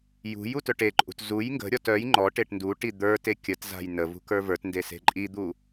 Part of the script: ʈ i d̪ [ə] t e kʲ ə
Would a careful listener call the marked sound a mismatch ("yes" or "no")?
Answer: yes